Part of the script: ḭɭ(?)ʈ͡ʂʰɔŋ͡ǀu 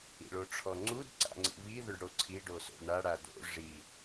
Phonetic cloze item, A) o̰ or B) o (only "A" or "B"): B